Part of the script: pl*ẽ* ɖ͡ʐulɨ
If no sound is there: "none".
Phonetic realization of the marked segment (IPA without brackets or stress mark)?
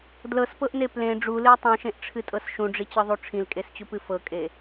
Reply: ẽ